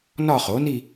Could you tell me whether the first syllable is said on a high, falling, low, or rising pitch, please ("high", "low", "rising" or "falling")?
falling